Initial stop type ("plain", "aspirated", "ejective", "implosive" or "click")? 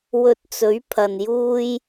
plain